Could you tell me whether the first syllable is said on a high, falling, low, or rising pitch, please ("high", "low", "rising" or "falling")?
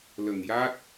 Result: low